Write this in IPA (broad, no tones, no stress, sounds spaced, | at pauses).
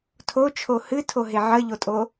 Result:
tʰ o t͡ʃʰ o h ɨ tʰ o ɦ e ʕ ə ʎ o tʼ o